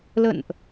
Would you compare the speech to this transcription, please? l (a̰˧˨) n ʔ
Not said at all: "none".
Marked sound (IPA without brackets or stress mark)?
ə̰˧˨